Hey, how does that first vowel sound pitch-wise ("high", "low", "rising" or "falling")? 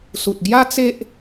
low